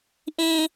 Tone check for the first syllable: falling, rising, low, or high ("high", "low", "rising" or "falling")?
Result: low